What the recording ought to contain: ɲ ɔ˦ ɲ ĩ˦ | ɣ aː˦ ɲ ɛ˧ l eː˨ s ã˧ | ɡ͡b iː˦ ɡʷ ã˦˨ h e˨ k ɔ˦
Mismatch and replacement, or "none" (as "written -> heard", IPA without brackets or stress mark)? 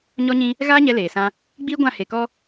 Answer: none